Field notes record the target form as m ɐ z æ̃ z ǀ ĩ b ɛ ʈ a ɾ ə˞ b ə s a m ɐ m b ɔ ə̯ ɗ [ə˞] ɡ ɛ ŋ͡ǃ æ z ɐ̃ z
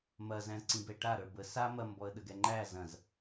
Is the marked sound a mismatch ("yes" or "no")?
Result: yes